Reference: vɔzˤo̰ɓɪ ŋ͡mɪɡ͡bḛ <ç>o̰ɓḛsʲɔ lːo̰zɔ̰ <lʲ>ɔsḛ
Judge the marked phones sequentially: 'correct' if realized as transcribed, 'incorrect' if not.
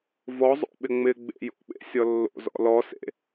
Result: incorrect, incorrect

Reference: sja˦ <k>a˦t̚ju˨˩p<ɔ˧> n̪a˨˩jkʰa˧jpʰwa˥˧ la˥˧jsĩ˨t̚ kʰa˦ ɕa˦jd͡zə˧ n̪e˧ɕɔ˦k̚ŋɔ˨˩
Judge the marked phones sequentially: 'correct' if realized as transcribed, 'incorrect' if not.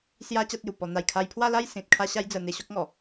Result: incorrect, correct

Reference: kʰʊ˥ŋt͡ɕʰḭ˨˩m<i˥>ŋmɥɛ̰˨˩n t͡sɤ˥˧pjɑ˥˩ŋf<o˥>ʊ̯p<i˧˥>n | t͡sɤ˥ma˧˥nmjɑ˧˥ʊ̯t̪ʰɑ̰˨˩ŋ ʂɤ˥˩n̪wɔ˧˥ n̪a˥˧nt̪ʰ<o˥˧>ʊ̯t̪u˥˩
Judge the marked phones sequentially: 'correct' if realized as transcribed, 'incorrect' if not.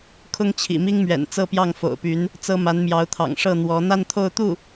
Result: correct, incorrect, incorrect, correct

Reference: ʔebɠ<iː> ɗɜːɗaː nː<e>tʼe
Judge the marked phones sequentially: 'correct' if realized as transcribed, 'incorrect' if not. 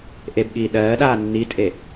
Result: correct, incorrect

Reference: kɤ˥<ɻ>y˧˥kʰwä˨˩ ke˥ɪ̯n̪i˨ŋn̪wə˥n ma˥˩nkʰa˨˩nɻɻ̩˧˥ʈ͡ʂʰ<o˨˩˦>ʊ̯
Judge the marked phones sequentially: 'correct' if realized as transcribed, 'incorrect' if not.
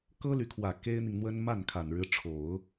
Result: incorrect, correct

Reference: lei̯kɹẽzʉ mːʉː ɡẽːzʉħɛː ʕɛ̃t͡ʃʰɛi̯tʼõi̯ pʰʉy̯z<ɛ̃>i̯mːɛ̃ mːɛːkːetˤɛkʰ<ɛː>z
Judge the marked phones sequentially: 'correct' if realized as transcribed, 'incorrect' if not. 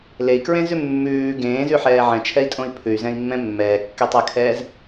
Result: correct, correct

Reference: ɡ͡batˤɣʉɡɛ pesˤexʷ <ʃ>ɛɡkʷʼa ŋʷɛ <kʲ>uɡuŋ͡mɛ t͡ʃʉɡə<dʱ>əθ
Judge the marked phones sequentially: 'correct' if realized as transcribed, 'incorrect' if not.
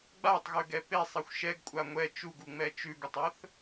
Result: correct, incorrect, incorrect

